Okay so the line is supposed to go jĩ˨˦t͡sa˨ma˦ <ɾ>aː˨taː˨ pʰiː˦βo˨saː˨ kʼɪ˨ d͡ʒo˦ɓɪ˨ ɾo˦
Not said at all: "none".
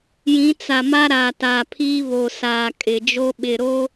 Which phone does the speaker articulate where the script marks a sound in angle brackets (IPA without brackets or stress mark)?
ɾ